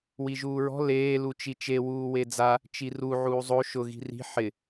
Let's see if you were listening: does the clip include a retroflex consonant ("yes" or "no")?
no